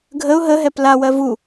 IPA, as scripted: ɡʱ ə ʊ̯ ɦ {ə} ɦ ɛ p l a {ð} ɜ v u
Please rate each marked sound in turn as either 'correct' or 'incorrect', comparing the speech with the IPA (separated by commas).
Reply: correct, incorrect